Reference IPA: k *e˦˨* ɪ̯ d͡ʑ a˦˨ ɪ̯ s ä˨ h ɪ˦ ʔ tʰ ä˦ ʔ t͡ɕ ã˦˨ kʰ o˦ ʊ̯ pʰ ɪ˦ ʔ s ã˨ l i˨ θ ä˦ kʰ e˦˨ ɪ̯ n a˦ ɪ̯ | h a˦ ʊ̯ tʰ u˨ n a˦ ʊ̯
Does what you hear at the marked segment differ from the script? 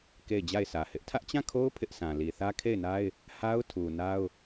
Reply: no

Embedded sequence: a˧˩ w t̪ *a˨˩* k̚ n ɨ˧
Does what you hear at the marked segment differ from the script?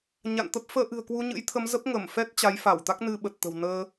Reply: yes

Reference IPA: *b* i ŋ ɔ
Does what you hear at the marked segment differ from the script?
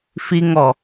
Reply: yes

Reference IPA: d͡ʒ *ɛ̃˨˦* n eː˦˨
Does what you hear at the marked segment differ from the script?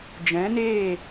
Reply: no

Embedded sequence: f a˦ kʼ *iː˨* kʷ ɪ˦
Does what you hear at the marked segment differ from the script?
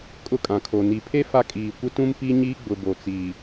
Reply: no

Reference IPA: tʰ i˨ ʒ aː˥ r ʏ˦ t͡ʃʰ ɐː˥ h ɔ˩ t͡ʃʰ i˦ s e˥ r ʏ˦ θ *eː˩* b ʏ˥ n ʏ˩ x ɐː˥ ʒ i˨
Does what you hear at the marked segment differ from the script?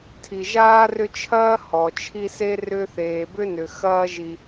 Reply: no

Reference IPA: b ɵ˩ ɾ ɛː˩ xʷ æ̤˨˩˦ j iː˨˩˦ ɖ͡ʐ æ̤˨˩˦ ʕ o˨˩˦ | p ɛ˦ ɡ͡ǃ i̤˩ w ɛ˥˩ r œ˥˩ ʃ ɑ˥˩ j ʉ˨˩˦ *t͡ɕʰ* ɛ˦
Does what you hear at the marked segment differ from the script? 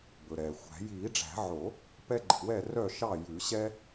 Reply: yes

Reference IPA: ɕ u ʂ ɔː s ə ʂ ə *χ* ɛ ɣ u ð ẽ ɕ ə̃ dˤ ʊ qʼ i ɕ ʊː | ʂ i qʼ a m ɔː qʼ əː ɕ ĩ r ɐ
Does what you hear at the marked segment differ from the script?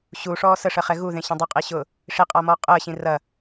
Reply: no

